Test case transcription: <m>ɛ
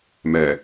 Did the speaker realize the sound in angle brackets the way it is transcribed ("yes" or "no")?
yes